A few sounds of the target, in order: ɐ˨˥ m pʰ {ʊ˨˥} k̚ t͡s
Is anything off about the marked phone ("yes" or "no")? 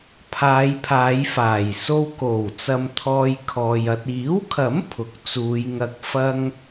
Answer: no